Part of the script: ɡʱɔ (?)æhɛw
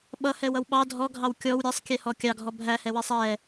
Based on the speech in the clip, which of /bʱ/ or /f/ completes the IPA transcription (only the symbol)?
bʱ